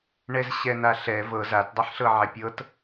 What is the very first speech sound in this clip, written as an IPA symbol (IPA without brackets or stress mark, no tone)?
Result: ɳ